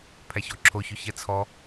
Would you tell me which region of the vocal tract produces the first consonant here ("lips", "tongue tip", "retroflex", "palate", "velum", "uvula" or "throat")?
lips